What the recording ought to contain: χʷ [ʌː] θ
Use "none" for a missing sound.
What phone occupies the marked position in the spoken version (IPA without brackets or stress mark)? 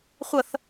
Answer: ʌ